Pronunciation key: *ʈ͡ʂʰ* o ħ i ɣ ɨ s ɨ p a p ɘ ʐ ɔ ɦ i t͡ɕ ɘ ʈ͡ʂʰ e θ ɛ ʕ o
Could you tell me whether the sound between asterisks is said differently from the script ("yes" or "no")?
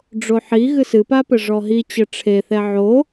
yes